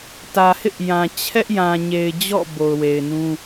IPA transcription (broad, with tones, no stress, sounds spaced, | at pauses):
t ä˨ h ɪ˦ ʔ j ã˨ t͡ɕʰ ɛ˦ ʔ j ã˨ ɲ e˨ ɪ̯ d͡ʑ ɔ̰˦˨ b o˨ ʊ̯ w e˨ ɪ̯ n ũ˦